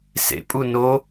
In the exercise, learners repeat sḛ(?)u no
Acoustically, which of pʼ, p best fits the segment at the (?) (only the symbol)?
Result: pʼ